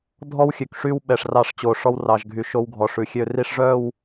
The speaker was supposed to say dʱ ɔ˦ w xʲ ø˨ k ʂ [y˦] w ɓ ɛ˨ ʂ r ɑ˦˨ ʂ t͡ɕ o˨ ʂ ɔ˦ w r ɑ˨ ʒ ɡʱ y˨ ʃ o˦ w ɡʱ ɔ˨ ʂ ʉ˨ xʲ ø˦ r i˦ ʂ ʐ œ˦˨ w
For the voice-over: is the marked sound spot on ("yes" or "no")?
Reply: yes